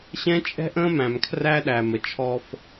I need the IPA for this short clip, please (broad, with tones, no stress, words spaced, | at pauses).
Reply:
ɕɛ̃˦t͡ʃʼɛ̤˦ ʔə̃ː˦mæ̃˨mkʰræ˦ɗæ˨ mə˨t͡ʃʰɔ˦f